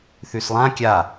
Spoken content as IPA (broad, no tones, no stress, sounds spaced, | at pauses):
θ ʉ s lˠ ã kʲ a